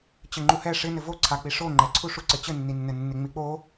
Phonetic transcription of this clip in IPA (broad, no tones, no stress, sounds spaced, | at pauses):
t͡ɕ ɘ ŋ͡ǃ u h ɛ ʂ ɪ n ɘ v o ǀʰ a k͡p i ʂ o ŋ͡ǃ ɛ ǀʰ u ʂ u ǀ ɘ t͡ɕ ɘ nː i nː ɘ nː ɪ ŋ͡m i k͡p o